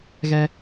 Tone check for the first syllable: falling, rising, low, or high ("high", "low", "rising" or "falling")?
high